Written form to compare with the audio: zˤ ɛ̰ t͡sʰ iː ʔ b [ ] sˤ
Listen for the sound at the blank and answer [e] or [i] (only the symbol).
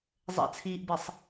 e